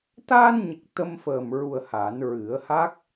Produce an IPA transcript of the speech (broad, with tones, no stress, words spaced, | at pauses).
t̪aː˧nɲə˨˩k̚ t̪ə˧mfəː˨˩mɹu˨˩ə̯ ha˨˩˦nɹɨ˨˩˦ə̯ha˦˥k̚